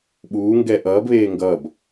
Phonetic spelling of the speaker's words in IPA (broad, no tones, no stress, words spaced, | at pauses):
ɓuːŋɡɛ ʔʌːbβeː ŋɡʌb